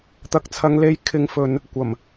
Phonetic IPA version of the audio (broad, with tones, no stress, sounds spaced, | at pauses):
t̪ ɐ˨ k̚ t͡sʰ ɐ˨˧ ŋ l e˧ j kʰ ɪ˨ ŋ f ɵ˨ n | kʷ ɐ˨˩ m